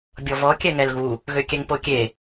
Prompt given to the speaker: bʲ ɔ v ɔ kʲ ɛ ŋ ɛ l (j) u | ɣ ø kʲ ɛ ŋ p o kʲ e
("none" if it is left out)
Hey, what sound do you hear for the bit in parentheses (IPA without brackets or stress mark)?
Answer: ɣ